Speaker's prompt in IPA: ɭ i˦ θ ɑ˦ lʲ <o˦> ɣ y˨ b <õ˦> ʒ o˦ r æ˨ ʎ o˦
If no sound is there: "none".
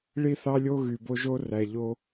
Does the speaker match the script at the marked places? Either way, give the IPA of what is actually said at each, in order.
o˦, o˦

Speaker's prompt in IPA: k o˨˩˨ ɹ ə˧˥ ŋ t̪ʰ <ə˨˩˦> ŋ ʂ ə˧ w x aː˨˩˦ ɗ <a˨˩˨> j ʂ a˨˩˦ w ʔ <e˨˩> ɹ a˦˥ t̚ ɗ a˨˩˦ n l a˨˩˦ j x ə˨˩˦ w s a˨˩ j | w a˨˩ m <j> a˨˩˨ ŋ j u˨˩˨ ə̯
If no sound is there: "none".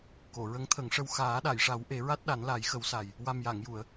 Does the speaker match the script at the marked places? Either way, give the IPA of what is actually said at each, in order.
ə˨˩˦, a˨˩˨, e˨˩˦, j

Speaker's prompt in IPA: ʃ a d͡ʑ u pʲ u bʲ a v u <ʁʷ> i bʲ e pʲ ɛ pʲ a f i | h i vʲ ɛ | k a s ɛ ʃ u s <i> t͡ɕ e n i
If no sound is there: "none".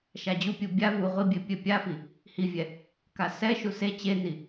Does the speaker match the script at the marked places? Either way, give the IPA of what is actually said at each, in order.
ʁʷ, e

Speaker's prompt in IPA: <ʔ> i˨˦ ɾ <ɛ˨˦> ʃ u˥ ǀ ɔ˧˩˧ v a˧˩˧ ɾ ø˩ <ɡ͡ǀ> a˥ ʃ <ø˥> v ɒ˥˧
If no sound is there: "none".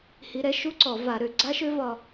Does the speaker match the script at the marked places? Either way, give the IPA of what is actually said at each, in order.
h, ɛ˨˦, ɡ͡ǀ, ø˥

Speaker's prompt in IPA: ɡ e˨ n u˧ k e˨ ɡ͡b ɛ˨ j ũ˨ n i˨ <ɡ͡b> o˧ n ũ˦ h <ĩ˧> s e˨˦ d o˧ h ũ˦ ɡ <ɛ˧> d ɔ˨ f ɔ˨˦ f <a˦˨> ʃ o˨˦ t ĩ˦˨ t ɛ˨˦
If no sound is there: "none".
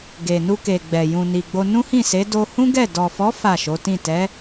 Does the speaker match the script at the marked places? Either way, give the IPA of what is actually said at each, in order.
ɡ͡b, ĩ˦˨, ɛ˦˨, a˦˨

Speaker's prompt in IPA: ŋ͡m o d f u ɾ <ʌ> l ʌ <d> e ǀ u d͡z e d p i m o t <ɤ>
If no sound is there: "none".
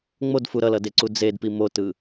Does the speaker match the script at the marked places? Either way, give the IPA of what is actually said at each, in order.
ʌ, d, ɯ

